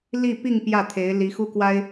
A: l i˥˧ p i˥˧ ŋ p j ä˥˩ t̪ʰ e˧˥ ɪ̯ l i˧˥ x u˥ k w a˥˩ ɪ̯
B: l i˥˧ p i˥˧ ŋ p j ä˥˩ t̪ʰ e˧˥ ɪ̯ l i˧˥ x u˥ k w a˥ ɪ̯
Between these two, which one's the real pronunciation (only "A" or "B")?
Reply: B